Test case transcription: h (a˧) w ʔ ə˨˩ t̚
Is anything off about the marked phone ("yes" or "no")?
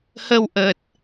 yes